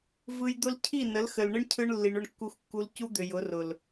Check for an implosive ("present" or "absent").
absent